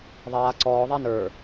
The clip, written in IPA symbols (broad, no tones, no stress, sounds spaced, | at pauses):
ðˤ aː ǀ ɔː ðˤ a n ə˞